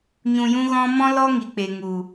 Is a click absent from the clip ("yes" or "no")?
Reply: yes